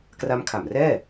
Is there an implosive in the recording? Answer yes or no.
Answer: no